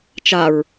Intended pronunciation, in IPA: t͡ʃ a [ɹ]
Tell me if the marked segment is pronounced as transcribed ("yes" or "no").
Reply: yes